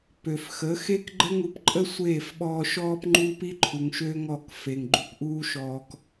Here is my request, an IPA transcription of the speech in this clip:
pø˨fxə˨˦ xe˦kɡ͡ǃə˦ŋu˧p ǃʼə˦ sʷeː˦˨fɓɔː˧ ʃɔː˧p ŋ͡ǃuː˦pi˦ǃʰu˨ŋ ʃøː˦ŋɔ˦˨k fe˨ŋɡ͡ǃu˧pʔuː˦ʃɔː˧k

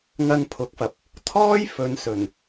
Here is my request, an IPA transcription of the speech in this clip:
ŋɐ˧n pʰʊ˨˥k̚fɐ˨p̚ | t̪ʰɔː˥jfɵ˨nsɵ˨˩n

